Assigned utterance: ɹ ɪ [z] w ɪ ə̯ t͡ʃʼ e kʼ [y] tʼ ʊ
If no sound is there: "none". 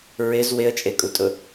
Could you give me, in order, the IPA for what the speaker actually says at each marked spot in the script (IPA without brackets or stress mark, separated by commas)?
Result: z, u